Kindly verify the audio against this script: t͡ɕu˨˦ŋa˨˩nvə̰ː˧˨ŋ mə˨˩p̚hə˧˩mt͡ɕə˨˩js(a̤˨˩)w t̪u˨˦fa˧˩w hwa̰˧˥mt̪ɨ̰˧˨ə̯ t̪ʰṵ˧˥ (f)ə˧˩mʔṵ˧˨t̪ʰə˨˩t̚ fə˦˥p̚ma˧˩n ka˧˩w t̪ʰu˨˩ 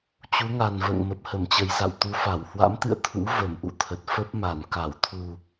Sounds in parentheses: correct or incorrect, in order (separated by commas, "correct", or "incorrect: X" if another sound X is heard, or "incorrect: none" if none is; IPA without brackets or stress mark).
incorrect: a̰˧˨, incorrect: v